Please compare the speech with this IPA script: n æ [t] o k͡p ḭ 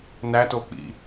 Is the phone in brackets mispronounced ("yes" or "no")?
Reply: no